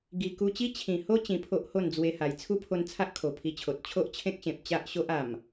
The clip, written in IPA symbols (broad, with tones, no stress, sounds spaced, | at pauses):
ɡ i˧ k u˧ t͡ɕ i˦ t͡ɕʰ ĩ˨˩ h o˦ t͡ɕ ĩ˧ pʰ o˦ ʔ h o˥˧ n d͡z w e˧ h a˨˩ j t͡sʰ u˦ pʰ o˧ n t͡sʰ a˦ ʔ kʰ o˨˩ pʰ i˧ t͡ɕʰ o˨ t̚ t͡ɕʰ o˦ ʔ t͡ɕʰ ẽ˦ k̚ ɕ ẽ˨ p̚ t͡ɕ a˦ ʔ ɕ o˦ ʔ a˨˩ m